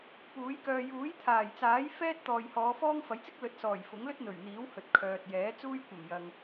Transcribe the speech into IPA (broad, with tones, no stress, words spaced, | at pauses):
puː˨˥jkœː˧ juː˨˥j t̪ʰaː˨˩jt͡saː˨˥j fɛː˥t̚ t̪ɔː˨jhɔː˨˧fɔː˥ŋ fɐ˨˥jt͡sɪ˥k̚ lɵ˨˥t̚sɔː˨˩j fʊ˨˥ŋlɵ˥t̚n̪ɵ˨˩ɥn̪iː˨˥w hɵ˨t̚kʰœː˨t̚jɛː˨˥ t͡suː˥jkʷɐ˨˩mjɐ˨ŋ